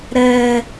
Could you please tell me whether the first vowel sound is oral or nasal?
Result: oral